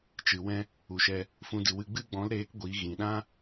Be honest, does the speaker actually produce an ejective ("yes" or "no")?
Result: no